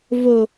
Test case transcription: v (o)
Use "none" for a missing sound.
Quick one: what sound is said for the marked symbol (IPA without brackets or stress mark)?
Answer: o